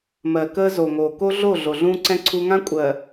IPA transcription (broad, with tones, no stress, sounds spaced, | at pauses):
m ɜ˨ k əː˦ z o˨ ŋ oː˨ k o˦ ɮ o˦˨ ɮ o˨ ɮ ũː˦ ǀ ɛ̃˦ ǀʰ u˦ ŋ ã˦ kʷʼ ɜ˨